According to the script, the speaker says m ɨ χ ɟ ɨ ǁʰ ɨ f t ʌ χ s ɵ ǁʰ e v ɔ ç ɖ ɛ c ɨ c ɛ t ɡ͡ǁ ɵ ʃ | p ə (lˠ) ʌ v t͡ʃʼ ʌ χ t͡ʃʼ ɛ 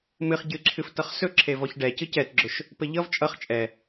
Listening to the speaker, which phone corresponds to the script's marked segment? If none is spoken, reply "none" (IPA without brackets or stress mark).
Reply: ʎ